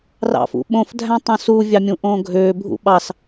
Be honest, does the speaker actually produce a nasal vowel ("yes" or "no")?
yes